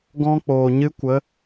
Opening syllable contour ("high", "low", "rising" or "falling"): high